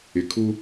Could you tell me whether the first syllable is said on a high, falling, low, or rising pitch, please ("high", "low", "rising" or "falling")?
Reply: low